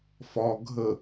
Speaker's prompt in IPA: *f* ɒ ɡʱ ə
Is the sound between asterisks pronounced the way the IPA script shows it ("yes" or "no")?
yes